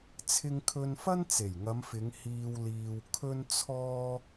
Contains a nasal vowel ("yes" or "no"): no